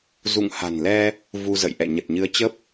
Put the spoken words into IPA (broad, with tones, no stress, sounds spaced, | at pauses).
z ṵ˧˨ ŋ h a̤˨˩ n l ɛ˧ | v u˧ z ə̰˧˨ j ʔ ɛ̰˧˨ ɲ ə˨˩ t̚ ɲ ɨ˨˦ ə̯ t͡ɕ ə˦˥ p̚